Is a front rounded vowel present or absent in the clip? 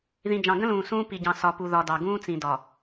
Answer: absent